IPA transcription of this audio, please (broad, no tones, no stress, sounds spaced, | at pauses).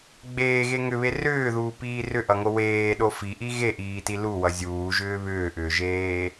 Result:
ɡ͡b eː ɣ e ŋ ʏ β e r ʏː ð uː p iː r ʏ ʔ ʌ ŋ o w eː ɗ o f i ʔ i ɣ e ʔ iː t i l u w ʌ zʲ uː ʒ ʏː β ʏː ʔ ʏː ʒ eː